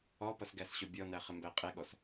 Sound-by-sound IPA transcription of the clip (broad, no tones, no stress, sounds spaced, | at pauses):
ɔ p ʌ s ɡ æ s ɕ ʊ bʲ ɔ n æ χ ɪ m b æ qʼ ɛ ɠ ɔ s